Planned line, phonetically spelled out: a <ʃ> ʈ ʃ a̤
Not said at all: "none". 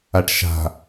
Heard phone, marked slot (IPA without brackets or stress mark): none